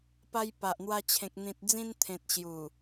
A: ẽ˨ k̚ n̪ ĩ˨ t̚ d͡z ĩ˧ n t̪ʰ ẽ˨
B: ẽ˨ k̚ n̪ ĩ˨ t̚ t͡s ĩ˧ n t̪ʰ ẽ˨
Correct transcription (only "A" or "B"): A